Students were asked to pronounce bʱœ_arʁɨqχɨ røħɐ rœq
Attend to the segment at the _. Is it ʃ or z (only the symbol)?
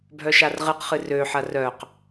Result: ʃ